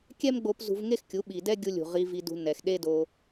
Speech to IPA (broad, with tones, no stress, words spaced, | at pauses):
kʲɛ˦mɡ͡bo˧p zṳ˧vŋe˦xkʲu˨˦ ɓi˨dɛ˦ɡʲu˧lʲṳ˨ ʁi˧ vi˧dṳ˧ nɛ˨xɗe˦do˧